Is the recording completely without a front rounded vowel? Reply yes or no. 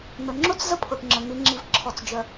no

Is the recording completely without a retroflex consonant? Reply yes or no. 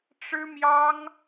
no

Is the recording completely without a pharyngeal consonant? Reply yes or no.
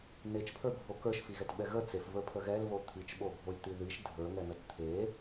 yes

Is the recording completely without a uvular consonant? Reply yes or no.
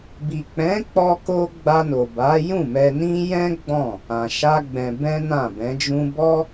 yes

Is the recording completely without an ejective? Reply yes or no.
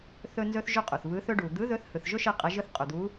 no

